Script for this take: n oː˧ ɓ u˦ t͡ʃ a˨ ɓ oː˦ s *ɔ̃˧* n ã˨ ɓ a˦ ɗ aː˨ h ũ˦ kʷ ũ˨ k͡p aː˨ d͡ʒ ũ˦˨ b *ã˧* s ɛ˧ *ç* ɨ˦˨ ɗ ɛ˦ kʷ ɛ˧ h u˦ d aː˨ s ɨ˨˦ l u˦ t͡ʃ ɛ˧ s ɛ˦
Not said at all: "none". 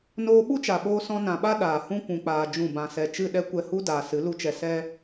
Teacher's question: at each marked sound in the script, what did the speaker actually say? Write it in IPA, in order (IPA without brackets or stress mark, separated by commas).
ɔ̃˦, ã˧, t͡ʃ